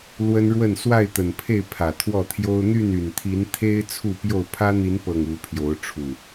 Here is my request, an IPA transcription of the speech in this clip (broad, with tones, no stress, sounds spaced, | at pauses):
l w ə˦ n ɻ w ə˥˨ n s w a˥˨ ɪ̯ t̪ ə˨˩ n pʰ e˥˨ ɪ̯ pʰ ä˨˩ t̪ʰ w ɔ˥˨ t̪ʰ j o˦ ʊ̯ n̪ y˥˨ n y˨˩ n t̪ʰ i˨˦ n t̪ʰ e˦ ɪ̯ t͡sʰ u˥˨ p j o˥˨ ʊ̯ pʰ ä˦ n̪ i˨˦ n p ɤ˨˩ ŋ u˨˦ pʰ j o˨˦ ʊ̯ ʈ͡ʂʰ u˨˩